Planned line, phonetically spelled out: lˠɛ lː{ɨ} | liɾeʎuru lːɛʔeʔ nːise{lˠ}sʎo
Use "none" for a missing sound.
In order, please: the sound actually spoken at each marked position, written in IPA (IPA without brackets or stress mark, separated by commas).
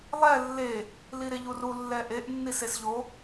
e, none